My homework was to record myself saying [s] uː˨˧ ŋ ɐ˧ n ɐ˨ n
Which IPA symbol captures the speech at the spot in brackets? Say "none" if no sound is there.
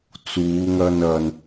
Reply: t͡s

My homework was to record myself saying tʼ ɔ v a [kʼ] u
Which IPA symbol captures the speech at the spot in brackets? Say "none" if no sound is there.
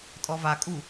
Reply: kʼ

